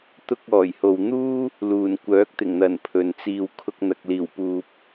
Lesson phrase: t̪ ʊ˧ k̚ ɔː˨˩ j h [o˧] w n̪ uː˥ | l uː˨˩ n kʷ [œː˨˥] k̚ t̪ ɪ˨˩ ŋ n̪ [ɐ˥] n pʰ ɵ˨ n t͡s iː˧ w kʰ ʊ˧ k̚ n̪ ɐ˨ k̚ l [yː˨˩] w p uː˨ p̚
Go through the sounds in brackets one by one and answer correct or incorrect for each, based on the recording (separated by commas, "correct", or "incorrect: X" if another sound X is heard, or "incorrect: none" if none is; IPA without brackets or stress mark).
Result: incorrect: o˨, correct, incorrect: ɐ˨˩, incorrect: iː˨˩